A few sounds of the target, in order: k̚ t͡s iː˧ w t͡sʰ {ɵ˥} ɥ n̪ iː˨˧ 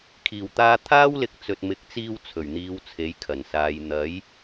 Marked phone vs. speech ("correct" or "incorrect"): incorrect